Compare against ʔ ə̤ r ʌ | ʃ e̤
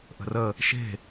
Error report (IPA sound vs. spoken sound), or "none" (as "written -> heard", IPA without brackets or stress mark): ʌ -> ə